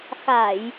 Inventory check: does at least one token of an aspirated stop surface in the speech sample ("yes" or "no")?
no